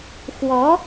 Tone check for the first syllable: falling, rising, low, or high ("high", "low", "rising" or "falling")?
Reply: rising